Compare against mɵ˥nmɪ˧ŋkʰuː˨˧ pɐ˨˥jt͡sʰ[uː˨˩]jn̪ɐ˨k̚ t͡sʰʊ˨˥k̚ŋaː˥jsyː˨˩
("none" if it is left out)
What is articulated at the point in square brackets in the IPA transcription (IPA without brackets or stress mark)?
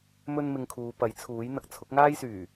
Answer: uː˨˥